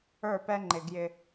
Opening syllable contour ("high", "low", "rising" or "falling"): falling